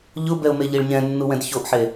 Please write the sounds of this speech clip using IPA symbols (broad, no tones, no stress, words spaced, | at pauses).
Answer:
ʎʊbɛʊ̯meʎiɭ ɲɛ̃nːuwɛ̃d çoʔħe